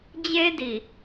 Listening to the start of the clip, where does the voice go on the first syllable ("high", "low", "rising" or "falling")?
high